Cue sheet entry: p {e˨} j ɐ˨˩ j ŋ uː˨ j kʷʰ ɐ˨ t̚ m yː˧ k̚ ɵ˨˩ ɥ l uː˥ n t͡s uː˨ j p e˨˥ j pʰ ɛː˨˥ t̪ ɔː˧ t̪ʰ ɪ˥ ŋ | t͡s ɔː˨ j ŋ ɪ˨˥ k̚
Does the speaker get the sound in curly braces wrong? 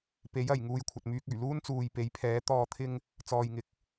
yes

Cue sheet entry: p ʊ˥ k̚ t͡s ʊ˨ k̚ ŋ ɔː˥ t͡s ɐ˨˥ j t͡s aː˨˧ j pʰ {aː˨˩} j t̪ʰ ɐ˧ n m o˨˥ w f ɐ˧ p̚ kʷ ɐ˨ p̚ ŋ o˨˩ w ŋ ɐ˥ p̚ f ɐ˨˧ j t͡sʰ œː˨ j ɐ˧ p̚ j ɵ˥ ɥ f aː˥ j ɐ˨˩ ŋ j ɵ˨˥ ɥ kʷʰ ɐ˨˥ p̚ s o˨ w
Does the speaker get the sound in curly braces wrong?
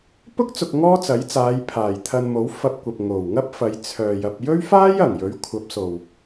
no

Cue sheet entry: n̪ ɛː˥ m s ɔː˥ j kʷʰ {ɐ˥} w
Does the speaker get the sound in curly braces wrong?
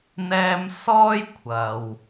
yes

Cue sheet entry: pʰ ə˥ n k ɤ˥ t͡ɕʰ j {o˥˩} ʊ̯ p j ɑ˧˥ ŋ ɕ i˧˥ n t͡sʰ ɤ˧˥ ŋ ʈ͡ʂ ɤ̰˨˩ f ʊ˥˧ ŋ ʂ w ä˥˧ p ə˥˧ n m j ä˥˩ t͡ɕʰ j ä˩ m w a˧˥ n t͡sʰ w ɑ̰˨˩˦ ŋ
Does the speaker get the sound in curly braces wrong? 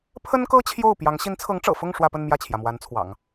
no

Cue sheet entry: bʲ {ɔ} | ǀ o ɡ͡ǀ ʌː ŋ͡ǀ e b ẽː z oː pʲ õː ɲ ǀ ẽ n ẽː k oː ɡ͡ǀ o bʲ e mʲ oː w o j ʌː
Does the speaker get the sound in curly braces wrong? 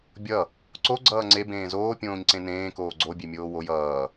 yes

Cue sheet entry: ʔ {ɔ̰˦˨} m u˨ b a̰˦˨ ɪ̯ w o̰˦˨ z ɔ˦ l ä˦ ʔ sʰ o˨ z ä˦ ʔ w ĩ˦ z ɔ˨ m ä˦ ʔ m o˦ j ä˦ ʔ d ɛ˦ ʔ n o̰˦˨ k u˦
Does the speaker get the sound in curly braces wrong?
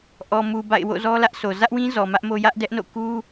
yes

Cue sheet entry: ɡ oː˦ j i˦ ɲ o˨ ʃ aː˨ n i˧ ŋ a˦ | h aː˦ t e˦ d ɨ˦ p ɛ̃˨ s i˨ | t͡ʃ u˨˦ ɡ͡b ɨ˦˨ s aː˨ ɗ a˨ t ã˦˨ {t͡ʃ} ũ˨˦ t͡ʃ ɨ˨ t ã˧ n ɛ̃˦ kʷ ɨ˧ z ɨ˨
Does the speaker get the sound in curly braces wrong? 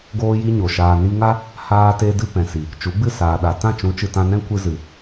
no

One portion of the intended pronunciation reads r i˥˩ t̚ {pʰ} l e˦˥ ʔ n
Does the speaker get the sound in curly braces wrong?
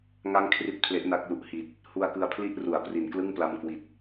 no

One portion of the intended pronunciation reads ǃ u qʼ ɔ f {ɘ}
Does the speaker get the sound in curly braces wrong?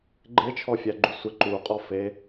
yes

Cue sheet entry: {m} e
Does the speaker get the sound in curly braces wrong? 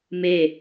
no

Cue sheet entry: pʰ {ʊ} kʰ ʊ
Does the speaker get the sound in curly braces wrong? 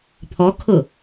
yes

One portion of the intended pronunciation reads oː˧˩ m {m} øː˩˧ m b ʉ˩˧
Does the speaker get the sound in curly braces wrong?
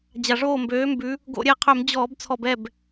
yes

